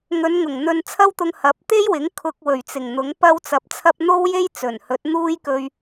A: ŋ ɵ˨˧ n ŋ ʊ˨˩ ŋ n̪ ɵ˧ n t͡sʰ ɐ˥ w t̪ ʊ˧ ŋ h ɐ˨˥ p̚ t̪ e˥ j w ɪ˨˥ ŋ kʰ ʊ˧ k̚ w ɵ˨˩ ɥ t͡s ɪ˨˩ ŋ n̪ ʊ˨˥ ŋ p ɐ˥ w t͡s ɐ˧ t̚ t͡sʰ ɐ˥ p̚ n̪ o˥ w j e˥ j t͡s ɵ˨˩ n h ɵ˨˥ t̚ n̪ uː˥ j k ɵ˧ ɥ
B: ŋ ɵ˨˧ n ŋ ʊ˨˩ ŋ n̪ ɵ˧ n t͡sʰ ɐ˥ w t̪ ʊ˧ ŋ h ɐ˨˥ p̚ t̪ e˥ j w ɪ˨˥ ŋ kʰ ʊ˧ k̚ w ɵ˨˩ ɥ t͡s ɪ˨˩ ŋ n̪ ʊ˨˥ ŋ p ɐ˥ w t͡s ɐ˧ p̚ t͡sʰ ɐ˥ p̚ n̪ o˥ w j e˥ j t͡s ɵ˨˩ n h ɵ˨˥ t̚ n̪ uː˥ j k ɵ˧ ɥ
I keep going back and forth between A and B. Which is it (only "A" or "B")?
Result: B